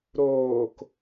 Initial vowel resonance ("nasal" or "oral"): oral